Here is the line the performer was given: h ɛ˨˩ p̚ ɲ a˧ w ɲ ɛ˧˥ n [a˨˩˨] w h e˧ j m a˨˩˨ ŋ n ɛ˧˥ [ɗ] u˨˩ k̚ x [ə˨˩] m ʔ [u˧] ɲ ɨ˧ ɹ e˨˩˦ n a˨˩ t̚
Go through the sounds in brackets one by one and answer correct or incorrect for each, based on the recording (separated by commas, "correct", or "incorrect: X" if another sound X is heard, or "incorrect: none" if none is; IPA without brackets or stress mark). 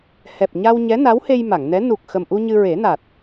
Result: incorrect: a˧˥, incorrect: n, correct, correct